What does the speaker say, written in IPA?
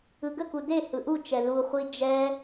ɯ ɡ ə k u d e h ɯ ʔ u t͡ʃ ɛ l u χʷ i d͡ʒ ɛ

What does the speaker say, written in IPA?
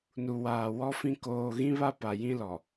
n u˨ w aː˨ w ɔ˦ f ĩ˦ k oː˨ ɣ ĩ˦ β a˦ p a˨ j ĩ˦ l ɔ˨

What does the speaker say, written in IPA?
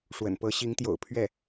ʂ w ə̰˨˩ n p ɤ˧˥ ɕ i˧˥ ŋ t̪ j o̰˨˩ ʊ̯ pʰ ɥ ɛ˥˩

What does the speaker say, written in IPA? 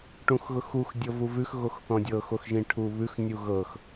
ʈ ũ x ɣ ʊ x u x dʲ ɤ v u v ʉ x ɣ o x θ ɔ̃ dʲ ɤ x o x ʒ ĩ ʈʰ u β ʉ x nʲ u ɣ ɤ x

